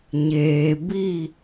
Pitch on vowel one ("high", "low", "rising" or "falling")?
low